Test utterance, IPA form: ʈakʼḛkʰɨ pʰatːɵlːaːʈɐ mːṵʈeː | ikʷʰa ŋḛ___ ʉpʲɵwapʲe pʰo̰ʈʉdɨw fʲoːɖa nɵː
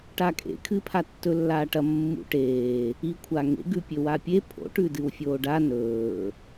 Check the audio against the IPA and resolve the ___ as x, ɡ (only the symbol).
ɡ